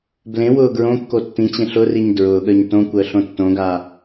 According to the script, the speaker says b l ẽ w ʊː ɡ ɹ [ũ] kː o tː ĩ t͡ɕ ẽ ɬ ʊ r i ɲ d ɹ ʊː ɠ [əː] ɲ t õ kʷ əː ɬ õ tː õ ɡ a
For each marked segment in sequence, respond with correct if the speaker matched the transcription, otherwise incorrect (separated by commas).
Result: incorrect, correct